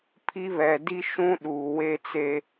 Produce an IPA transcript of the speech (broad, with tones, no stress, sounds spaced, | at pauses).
pʰ i˦ β ɛ˨ d i˦ ʃ ũ˦ ɗ uː˨ w e˦ t͡s e˦